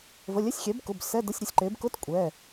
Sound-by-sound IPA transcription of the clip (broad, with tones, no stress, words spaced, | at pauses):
və˩˧˩lʲɛ˧˥˧sʲxʲɛ˩˥bkʊ˩˧˩b sɛ˧˥˧də˧˥˧sʲɾʲʊ˩˥sʲǃe˩˥b kʊ˧˥˧t kʷʼɛ˩˧˩